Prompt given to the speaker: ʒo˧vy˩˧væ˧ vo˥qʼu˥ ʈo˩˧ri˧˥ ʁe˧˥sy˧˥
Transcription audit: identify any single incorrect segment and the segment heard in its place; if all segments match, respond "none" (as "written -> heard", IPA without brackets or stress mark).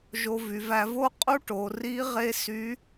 none